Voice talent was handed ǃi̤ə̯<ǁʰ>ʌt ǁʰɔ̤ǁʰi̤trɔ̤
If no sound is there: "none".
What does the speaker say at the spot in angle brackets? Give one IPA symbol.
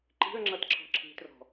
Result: ŋ͡ǁ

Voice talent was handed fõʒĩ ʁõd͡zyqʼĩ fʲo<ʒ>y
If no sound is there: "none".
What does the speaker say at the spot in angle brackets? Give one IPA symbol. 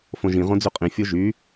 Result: ʒ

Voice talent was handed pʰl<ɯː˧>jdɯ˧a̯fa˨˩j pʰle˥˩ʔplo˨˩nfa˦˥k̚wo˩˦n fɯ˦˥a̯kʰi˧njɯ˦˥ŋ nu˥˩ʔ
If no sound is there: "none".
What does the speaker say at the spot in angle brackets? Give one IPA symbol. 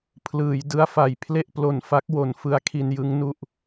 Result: ɯː˩˦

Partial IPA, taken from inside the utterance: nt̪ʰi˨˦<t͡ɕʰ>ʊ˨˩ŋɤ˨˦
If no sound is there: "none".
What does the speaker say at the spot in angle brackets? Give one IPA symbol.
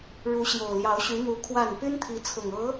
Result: t͡sʰ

